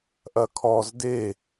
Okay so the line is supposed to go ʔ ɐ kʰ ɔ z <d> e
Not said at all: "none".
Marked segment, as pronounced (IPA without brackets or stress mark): d